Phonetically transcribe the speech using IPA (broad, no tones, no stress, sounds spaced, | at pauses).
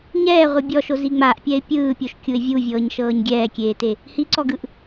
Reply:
ɲ ɛː ʁʷ ɯ bʲ ɔ ʃ o z i ŋ͡m a ʔ pʲ ɛ ɪ̯ pʲ ɯː pʲ o ʃ kʲ u ɪ̯ vʲ u vʲ ɤː ɲ ʃ ɤː ɲ ɡʲ ɛː kʲ eː t e | h i ǀ ɔ ɡ ɯ ʔ